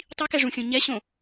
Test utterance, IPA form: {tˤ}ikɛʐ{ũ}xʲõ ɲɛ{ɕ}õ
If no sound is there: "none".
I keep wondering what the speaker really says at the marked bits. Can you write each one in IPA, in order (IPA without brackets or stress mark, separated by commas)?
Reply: tˤ, ũ, ɕ